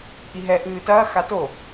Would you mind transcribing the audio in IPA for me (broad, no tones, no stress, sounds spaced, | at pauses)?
ʔ i ɦ ɛ ʔ ɨː t ɐː x a t o